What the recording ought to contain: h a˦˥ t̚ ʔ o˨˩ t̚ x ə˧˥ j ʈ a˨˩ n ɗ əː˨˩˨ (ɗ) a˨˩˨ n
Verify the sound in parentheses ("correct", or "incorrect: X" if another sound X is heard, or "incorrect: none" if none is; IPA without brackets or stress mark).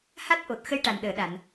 correct